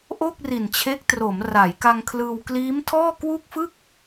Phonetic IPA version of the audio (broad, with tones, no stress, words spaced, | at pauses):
ʔo˥˩k̚ri˨˩nt͡ɕʰe˦˥k̚tro˩˦m ra˩˦jka˧ŋkʰlɯː˧w kliː˦˥mtʰɔː˥˩ kwu˥˩k̚fɯ˥˩k̚